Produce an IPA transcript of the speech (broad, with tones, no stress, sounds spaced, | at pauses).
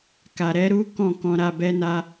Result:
k a˨ ɾ ɛ˨˦ ɾ u˦ k ɔ̃˦˨ k ɔ̃˧ ɾ a˧ b ɛ˦ n a˦